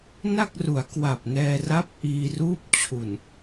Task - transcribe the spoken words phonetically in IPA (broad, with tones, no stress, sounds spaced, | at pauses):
n a˥˩ k̚ r u˩˦ a̯ k w a˨˩ p̚ n ɛː˧ r a˦˥ p̚ ʔ iː˧ r uː˥˩ p̚ t͡ɕʰ u˨˩ n